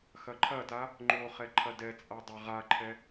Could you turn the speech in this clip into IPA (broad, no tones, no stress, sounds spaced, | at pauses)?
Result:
x ɐ ǃʰ ɐ t a | ŋ͡ǃ o χ ɛ ǃʰ ɐ d ɛ t͡sʼ a dˤ a ʁ a ǃʰ ɛ